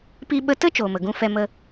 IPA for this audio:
p i˧ ɓ ə˧ t ə˦ t͡ʃ oː˨ m ə˨ ɡ ũ˧ f ɛ˧ m ə˦

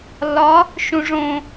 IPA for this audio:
l ɒ | ʃ ũ ʐ õ

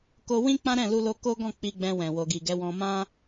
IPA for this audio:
k o˧ w ĩ˦ k͡p ã˦ ɾ ɛ̃˦˨ l u˧ l o˧ k o˦ ɡ ɔ̃˦˨ k͡p i˧ ɡ͡b ɛ̃˧ w ɛ̃˨ w o˨ ɡ i˨ ɡ ɛ˨˦ w ɔ̃˧ m ã˦

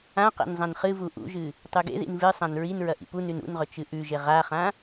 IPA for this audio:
ã q ḛ n zˤ ɐ̃ n χ ɨ v u ʔ ṵ ʒ ɨ | tˤ ʉ ɡ ḛ ð ḭ n v ɨ sˤ ã n ɹ i n ɹ ɐ ʔ ḭ p u n ʉ n ṵ n ʁ ɵ t͡ʃ ɨ ʔ ʉ ʒ e ʁ a χ ã

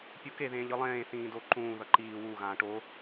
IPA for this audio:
pʲ u k e ð ẽː ʎ ɯ lˠ ẽː θ ĩː d o ǃ ũː ð ʌ ǃ iː w u ɣ ãː ʈ o

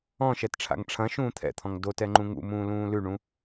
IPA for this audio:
ɔ̃ ʃ ɛ t ʈ͡ʂʰ a̰ ŋ ʈ͡ʂʰ ɐ̃ ʃ ũː t̪ʰ ɛ̰ t̪ʰ ɔ̃ ŋ d o t ɛ ŋ͡ǃ ũ ŋ ṵ m ũː l ũː l ʉ ɳ ũ

